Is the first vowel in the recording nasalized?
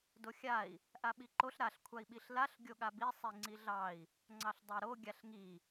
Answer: no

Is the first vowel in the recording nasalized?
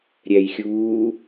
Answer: no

